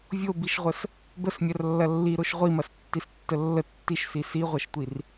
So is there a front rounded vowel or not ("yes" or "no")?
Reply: no